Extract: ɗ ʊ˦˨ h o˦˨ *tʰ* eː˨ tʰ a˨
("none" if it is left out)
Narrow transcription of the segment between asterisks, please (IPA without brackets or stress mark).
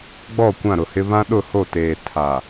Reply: t